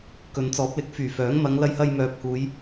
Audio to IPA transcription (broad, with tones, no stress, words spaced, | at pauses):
kɵ˨nt͡sɔː˨˥p̚lɪ˨˥k̚ fyː˨˩fœː˨˥ŋ mɐ˨˧ŋlɐ˧jhɐ˧j mœː˨p̚huː˨˧j